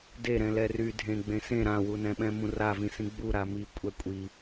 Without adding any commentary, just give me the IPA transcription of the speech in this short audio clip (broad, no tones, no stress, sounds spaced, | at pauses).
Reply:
d e ɾ ɛ̃ l ɛ r y dʱ ẽ ɡ͡b ẽ s ẽ ɾ ã w u n ɛ̃ ɓ ɛ̃ m ũ r a v ĩ s ĩ ɡ͡b u ɾ a m i kʷʼ ɛ kʷʼ i